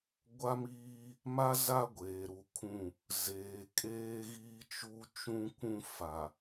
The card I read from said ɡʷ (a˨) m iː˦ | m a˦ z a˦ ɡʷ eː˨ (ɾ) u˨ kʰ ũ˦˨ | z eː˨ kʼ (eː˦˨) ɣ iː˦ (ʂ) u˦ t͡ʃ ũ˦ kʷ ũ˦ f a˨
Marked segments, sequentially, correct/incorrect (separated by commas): incorrect, correct, incorrect, incorrect